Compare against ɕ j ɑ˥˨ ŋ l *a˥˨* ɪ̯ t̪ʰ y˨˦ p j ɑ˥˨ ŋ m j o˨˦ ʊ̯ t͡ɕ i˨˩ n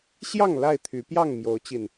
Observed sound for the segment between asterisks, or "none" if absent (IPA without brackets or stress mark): a˥˨